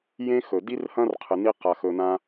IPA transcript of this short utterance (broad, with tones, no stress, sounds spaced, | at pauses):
j ẽ˦ x ɵ˩ d i˥ r h ɐ̃˥ r qʰ ɨ˨ n i˦ q a˨ x ɵ˨ n ã˦